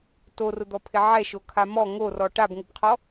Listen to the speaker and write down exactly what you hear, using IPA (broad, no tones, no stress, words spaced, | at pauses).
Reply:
torʊd̪ɔpʰɪ ʕɛʃokʰa mɔ ŋorɔ ʈabŋʊbqʰɔ